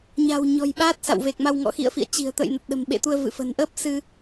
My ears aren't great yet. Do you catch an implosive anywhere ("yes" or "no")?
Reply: yes